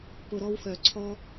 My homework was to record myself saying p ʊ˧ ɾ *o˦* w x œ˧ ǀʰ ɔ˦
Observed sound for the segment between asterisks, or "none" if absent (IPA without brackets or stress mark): ɔ˦